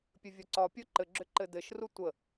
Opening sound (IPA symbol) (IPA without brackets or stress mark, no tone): pʲ